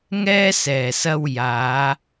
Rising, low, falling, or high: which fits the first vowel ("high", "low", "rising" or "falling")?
high